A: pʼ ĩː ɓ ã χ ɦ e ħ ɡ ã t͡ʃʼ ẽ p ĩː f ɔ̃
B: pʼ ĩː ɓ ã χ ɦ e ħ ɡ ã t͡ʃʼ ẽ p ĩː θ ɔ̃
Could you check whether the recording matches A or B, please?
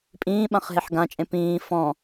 A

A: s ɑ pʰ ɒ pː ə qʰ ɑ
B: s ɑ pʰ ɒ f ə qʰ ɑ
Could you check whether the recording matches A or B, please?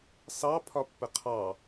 A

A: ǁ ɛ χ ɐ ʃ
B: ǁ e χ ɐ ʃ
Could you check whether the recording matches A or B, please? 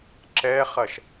A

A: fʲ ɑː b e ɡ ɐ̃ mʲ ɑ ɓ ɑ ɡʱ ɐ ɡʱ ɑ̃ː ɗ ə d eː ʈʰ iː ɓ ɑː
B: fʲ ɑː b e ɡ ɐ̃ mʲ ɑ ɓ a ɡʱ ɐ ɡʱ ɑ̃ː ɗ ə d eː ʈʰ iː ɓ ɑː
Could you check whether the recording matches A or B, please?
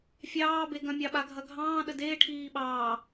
B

